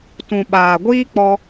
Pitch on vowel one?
low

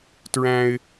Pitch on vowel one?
high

